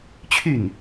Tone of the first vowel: falling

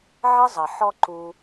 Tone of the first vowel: high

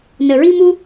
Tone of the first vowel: low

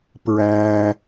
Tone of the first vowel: low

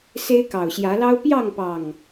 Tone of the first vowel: high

